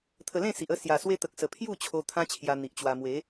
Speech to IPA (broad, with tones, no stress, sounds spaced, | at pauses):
t̪ʰ ə˧ l ẽ˥˧ s i˨ ʔ ə˥˧ s j a˨˩ s w e˧ t̪ ə˨ k̚ s ə˨˩ pʰ j u˥˧ t͡ɕʰ o˧ t̪ʰ ã˦ t͡ɕʰ j a˧ n̪ i˨ ʔ t͡ɕ w a˧ m w e˨˦